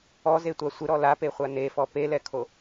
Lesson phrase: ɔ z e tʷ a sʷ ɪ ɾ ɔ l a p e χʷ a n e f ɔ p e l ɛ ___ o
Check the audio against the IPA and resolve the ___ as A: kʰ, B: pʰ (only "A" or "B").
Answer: A